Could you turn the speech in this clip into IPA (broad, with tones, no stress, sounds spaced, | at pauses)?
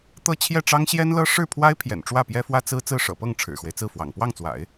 t̪ ɤ˥˧ t͡ɕʰ j ɛ˥˩ ʈ͡ʂ ɑ˥ ŋ ɕ j ɛ˥ n l ɤ˥ ʂ ɻ̩˥˩ pʰ w a˥ ɪ̯ pʰ j ɛ̰˨˩ n ʈ͡ʂ w ä˥˩ p j ɛ˥ f w ä˥ t͡s ɹ̩˥ t͡s ɹ̩˥˩ ʂ ɤ̰˨˩ p ɤ˥˩ ŋ ʈ͡ʂʰ ɻ̩˨˩ x w e˦ ɪ̯ t͡s ɹ̩˥˩ f w ɑ̰˨˩ ŋ p w ɑ˥˩ ŋ t͡s w a̰˨˩˦ ɪ̯